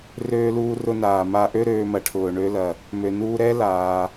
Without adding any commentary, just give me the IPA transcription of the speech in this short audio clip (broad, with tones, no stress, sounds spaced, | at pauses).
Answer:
r øː˧ l uː˧ r ʊ˧ n aː˩ m a˧ ʔ ø˥ ɾ øː˧ m ɐ˩ ʈʰ ʊː˩ ɳ ø˧ l ɐ˩ | m ø˩ n uː˧ ɾ ɛ˥ l aː˩